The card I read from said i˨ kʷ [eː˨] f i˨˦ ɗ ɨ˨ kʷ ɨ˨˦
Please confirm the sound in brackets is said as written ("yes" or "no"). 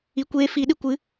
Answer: no